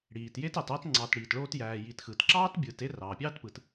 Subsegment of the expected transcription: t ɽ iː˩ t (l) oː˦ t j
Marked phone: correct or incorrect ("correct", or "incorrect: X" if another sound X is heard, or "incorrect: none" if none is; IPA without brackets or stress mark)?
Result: incorrect: ɭ